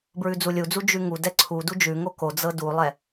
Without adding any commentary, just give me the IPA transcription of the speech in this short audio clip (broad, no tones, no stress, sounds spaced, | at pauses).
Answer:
b ɹ ʉ d͡z u lʲ u d͡z u d͡ʒ ʉ ŋ u d ɛ ǀʰ u d u d͡ʒ ʉ ŋ o k o d͡z ɤ d u lˠ ɛ